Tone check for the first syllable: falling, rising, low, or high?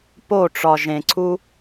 falling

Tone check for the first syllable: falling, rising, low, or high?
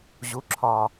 rising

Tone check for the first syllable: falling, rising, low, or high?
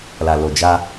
low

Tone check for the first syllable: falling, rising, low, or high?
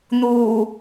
low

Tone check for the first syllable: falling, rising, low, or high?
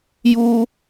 high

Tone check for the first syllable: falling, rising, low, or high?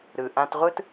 low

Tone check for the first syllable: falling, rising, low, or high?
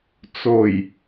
low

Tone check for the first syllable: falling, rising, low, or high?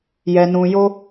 low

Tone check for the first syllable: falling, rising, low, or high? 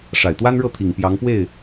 low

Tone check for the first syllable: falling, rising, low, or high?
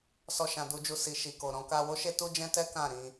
high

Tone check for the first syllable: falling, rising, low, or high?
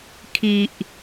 low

